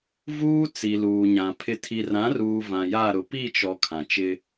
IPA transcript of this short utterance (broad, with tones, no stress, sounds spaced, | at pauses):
v uː˦ t͡s i˨ l uː˨ ɲ ã˨ pʰ ɪ˨ tʰ i˨ r ã˨˦ r uː˨ v ã˨ j a˦˨ ɾ ʊ˨ p i˦˨ t͡ʃ ɔ˨ kʰ ã˨ t͡ʃ ɪ˦